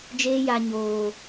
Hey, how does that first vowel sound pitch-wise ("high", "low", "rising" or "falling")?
high